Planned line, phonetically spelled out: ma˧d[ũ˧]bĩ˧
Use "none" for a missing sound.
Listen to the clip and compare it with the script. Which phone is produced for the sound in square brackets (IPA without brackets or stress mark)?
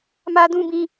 ũ˧